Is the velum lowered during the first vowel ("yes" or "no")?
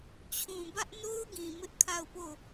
yes